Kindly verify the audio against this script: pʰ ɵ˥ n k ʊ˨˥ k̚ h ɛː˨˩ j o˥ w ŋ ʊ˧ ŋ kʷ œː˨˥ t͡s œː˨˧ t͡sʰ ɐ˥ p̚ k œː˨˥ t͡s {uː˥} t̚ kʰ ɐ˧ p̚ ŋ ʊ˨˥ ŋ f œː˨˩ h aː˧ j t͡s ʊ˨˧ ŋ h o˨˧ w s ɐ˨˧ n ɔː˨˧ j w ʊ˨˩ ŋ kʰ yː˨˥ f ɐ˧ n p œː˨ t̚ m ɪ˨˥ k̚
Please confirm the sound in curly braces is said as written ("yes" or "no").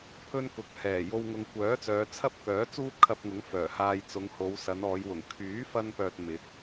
yes